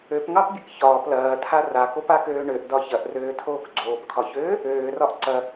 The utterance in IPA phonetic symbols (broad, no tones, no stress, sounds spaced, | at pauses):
ø p ŋ ɑ p bʲ ə k ç ɒː p l ɐː tʰ a r a k o p a k øː ɳ ø ʔ d ɒ ç ɐ ʔ r øː tʰ oː k ɡ͡ǀ oː p kʰ ɒ ç øː | øː r ɒ ʔ ǀ ɐ